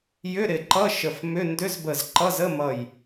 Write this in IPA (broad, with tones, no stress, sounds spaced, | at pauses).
j ʏ˧˥˧ ɾ ɪ˧˩ ǃ ʌ˧˥˧ ʃ ə˧˩ f m ʏ˧˥˧ n d ʏ˧˥˧ z b ə˧˩ z ǃ ʌ˧˥˧ z ə˧˥˧ m ʌ˧˩ j